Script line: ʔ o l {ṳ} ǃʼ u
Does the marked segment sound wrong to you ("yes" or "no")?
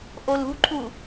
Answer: no